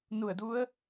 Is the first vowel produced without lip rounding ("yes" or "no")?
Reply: no